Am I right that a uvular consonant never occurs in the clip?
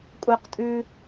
no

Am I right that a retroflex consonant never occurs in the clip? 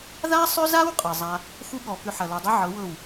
yes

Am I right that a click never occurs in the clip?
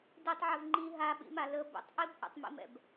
no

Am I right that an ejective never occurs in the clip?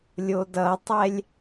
yes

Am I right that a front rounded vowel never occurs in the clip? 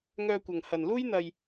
no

